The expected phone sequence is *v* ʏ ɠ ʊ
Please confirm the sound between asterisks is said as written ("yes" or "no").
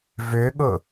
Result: yes